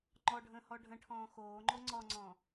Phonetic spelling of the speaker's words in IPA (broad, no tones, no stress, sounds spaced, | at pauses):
ŋ͡ǃ ɔ ɖʱ ə̃ː h ɔ ɖʱ ə̃ ʈʰ ɔ̃ː x oː ŋ͡ǃ o ŋ͡ǀ ɔ ŋ͡ǀ ɔ̃